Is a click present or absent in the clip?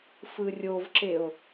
present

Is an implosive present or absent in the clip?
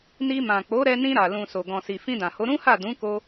absent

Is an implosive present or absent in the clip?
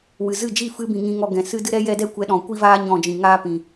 present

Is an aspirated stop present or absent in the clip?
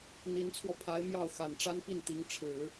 present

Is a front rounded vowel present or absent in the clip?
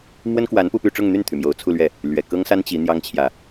present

